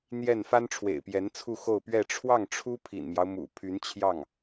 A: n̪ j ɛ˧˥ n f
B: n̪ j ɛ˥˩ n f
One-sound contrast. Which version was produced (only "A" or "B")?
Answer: B